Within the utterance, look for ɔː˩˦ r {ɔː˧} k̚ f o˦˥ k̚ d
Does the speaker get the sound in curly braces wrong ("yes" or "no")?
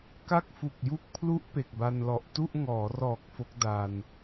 yes